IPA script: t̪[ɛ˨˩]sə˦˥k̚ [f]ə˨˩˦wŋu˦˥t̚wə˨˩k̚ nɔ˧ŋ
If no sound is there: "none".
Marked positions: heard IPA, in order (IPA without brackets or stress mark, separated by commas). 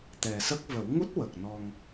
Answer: ɛ˨˩, v